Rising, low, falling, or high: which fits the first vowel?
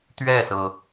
falling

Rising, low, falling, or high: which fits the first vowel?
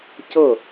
falling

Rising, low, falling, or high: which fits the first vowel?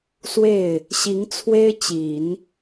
falling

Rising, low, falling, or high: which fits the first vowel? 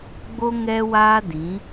high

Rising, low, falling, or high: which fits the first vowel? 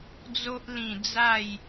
high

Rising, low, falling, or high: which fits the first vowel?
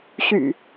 low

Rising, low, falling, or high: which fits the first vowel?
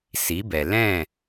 rising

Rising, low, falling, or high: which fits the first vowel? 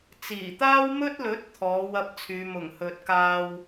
low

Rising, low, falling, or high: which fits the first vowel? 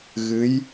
rising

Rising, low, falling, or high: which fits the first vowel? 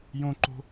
high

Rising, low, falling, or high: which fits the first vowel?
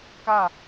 falling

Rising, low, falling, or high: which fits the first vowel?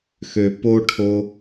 low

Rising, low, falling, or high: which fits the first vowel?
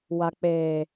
low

